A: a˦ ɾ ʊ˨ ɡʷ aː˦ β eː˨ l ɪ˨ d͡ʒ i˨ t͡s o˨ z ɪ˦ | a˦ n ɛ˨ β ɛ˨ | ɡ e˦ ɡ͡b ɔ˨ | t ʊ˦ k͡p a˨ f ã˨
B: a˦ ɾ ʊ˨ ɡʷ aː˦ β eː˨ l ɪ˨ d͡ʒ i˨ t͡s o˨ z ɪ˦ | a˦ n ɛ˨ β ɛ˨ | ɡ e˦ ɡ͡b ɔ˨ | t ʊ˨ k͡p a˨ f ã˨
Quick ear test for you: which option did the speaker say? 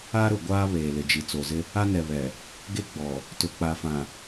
B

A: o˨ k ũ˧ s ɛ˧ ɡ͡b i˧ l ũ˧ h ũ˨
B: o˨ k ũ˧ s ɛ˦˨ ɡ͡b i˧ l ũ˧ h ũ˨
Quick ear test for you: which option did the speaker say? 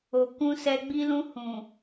A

